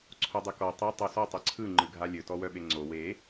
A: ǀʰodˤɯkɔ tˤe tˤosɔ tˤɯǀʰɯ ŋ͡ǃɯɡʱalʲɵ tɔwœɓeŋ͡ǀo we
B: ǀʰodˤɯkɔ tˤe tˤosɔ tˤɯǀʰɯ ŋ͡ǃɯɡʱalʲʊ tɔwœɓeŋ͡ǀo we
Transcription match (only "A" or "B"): A